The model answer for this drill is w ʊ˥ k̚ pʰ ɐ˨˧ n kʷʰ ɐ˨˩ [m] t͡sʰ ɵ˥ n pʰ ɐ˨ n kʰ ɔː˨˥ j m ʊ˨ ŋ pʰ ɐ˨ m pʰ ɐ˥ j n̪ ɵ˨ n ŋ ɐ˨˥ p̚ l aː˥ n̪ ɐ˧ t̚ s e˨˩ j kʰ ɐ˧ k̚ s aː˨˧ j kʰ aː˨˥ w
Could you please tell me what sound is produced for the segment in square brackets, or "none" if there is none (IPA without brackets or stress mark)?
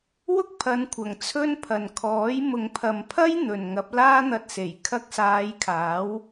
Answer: ŋ